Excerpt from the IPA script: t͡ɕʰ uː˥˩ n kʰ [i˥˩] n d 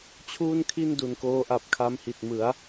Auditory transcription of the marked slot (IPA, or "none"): i˥˩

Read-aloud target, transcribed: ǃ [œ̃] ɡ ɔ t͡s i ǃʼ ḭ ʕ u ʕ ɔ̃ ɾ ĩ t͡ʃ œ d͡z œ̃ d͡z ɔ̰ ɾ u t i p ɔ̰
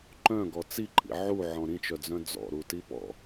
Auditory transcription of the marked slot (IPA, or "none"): œ̃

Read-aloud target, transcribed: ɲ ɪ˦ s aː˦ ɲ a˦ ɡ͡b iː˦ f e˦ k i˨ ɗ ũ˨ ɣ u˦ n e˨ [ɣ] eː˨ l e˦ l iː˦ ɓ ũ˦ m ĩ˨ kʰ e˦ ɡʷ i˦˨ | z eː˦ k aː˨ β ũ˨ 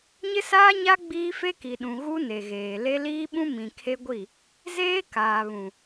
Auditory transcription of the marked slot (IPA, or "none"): ɣ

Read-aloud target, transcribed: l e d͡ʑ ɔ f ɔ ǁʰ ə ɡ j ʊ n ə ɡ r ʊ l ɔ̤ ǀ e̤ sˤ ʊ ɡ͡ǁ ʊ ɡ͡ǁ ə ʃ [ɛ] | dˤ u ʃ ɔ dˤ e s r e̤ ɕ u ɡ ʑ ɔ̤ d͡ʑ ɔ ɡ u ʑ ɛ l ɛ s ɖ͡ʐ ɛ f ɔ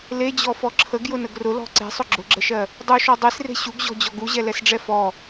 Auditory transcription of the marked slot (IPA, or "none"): ɜ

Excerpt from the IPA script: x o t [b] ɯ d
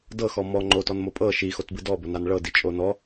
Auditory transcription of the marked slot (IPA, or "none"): b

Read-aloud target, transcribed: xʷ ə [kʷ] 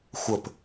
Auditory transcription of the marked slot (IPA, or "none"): p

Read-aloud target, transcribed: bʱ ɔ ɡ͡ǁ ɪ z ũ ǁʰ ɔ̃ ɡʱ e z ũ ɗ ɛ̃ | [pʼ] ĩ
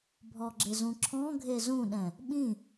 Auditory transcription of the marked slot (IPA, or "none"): ɓ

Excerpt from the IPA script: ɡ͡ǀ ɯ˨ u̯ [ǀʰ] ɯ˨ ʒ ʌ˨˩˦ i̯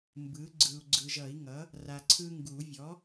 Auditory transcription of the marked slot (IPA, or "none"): ɡ͡ǀ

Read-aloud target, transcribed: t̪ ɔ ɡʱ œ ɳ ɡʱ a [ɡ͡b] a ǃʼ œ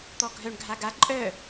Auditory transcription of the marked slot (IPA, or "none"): ɡ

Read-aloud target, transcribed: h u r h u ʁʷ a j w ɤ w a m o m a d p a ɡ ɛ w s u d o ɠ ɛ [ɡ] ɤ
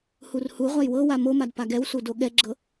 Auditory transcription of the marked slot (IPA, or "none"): ɡ͡ǁ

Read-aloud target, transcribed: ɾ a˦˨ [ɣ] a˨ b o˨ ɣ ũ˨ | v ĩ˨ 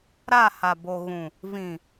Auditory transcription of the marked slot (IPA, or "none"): h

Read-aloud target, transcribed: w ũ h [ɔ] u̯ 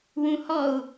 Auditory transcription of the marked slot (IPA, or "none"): ɔ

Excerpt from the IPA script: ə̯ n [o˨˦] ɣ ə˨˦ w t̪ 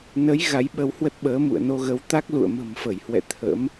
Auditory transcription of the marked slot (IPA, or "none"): o˧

